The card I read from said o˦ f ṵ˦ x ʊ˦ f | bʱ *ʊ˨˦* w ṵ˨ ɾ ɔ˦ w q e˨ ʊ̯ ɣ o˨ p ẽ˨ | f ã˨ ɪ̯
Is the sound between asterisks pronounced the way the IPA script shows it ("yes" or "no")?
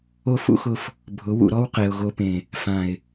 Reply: yes